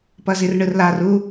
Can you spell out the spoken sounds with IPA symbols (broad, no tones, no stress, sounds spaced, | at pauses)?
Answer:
p ʌ z i r ɳ ɯ r l a r u